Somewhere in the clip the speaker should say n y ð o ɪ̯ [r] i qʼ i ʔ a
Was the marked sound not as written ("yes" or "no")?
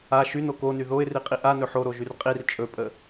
no